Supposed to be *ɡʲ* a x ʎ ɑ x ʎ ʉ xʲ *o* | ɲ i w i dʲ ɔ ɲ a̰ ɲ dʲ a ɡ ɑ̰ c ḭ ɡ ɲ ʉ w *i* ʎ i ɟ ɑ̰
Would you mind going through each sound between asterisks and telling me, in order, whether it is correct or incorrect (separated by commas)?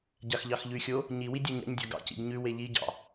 incorrect, correct, incorrect